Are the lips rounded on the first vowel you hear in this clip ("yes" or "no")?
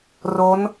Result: yes